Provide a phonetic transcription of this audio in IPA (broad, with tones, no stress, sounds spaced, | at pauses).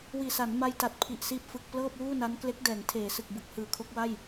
w iː˨˩ s a˩˦ n m a˧ j t a˨˩ t̚ pʰ i˨˩ ʔ s iː˦˥ p̚ f ɯ˨˩ k̚ p l ɤː˥˩ p̚ w uː˥˩ n a˦˥ n k l e˦˥ k̚ d ɛː˩˦ ŋ tʰ eː˩˦ s ɯ˨˩ k̚ b ɯ˨˩ k̚ h ɯː˨˩ kʰ o˦˥ k̚ w a˥˩ j